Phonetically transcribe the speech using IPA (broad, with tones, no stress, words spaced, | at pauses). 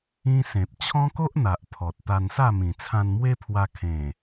ĩ˦ sẽ˨p̚t͡ɕʰɔ̃˦ko˦ʔn̪a˨ʔ pʰɔ˨t̚ t̪a˧nsa˥˧ mĩ˨˩t͡sʰã˧nmwe˦pʰwa˧ kʰẽ˨˩